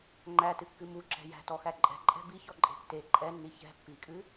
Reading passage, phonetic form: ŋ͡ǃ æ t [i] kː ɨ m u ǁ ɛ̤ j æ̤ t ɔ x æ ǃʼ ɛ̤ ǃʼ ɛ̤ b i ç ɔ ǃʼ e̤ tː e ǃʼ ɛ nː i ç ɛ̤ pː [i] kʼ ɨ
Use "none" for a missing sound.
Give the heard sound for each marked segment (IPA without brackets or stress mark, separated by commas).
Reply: ɨ, i